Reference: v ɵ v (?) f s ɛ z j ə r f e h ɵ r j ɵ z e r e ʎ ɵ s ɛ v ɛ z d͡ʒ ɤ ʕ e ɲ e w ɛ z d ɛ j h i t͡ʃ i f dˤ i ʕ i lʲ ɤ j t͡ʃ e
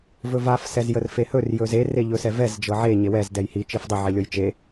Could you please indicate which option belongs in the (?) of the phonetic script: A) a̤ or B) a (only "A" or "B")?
B